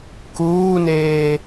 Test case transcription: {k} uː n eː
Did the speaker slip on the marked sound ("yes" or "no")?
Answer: no